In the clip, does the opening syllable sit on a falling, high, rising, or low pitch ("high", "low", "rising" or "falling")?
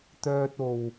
high